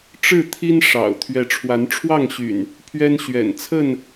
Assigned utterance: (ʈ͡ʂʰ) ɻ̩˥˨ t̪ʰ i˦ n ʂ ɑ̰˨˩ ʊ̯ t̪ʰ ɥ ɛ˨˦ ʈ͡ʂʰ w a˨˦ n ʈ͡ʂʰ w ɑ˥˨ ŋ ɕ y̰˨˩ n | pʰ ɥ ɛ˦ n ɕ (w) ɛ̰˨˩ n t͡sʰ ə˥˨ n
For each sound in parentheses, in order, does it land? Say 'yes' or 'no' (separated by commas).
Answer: no, no